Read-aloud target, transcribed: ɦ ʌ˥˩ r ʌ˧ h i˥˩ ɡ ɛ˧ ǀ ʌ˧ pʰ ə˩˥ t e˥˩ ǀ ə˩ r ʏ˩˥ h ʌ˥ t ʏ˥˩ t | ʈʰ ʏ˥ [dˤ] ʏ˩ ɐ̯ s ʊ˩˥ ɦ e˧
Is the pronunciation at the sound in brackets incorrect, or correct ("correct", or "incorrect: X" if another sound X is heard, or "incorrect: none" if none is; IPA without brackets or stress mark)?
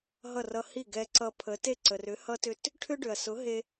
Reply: incorrect: ɖ